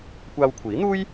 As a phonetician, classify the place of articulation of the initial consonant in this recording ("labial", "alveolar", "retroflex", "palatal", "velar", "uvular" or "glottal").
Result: velar